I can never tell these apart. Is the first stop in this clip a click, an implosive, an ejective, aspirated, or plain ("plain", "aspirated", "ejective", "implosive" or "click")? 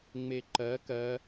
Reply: click